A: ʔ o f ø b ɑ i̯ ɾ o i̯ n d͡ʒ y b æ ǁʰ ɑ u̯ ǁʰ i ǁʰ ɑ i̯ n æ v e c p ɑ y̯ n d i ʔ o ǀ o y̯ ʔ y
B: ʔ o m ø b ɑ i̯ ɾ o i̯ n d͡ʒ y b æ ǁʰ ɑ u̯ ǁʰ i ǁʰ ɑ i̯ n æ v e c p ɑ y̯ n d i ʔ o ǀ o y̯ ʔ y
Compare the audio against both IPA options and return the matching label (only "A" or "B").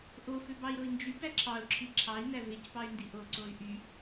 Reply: A